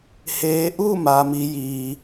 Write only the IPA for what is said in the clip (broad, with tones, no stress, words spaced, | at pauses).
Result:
heː˩˧ʔuː˥˨ maː˩mi˩˧ jiː˩